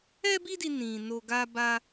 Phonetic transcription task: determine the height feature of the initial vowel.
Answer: mid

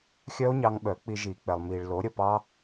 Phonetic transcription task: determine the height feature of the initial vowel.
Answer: mid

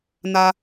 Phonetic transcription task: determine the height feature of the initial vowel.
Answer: low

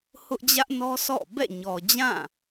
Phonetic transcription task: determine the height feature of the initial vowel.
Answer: high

